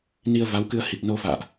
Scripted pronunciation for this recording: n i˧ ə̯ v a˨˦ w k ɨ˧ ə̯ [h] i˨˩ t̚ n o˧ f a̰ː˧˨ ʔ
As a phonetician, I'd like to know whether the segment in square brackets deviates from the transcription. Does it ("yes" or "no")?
no